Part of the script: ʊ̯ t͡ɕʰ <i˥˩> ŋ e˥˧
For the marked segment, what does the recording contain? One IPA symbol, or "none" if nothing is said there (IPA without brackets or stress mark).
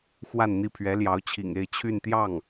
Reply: ḭ˨˩